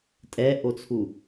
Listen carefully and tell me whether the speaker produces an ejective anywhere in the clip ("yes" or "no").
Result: yes